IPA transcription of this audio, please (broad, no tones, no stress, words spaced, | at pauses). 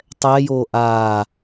tˤɛjoː ʔaː